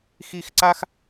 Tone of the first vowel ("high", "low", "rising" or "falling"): high